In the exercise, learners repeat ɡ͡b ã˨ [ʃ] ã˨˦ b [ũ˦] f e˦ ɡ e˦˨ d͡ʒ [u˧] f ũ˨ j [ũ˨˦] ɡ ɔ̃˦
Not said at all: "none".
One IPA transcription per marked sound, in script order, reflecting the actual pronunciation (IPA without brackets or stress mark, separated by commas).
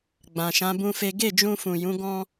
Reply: ʃ, ũ˦, ũ˧, ũ˨˦